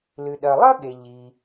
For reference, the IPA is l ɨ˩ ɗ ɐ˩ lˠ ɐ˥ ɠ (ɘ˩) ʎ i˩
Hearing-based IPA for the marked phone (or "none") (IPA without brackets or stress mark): e˩